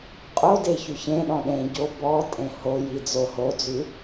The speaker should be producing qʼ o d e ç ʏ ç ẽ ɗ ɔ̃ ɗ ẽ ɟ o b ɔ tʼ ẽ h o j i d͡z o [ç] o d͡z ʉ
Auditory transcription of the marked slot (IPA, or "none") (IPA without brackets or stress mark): h